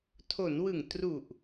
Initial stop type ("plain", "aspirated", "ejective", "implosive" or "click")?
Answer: aspirated